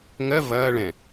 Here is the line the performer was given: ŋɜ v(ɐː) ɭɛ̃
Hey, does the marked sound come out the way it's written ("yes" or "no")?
yes